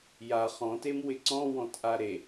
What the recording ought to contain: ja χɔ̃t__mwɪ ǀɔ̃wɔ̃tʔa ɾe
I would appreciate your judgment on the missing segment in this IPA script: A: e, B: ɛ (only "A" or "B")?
A